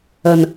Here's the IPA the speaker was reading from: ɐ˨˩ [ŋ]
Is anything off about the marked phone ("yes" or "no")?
yes